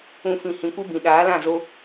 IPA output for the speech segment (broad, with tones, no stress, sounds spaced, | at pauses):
ũ˧ f ĩ˨ h ĩ˨ kʷ ɨ˦ b ĩ˨ ɗ aː˨˦ l ã˦˨ z o˧